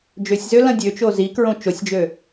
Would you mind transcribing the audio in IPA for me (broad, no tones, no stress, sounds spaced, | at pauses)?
d͡ʒ ø sʲ z ø l ɐ̃ dʲ ø t͡ʃ o z i k ɹ õ t͡ʃ o sʲ d͡ʒ ø